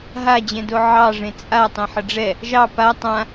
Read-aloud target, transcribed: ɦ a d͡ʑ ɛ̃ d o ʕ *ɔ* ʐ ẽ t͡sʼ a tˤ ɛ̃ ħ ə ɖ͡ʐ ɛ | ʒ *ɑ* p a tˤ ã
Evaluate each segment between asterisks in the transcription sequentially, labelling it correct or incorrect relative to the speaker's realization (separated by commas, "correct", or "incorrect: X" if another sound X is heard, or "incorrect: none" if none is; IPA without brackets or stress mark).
incorrect: ɑ, correct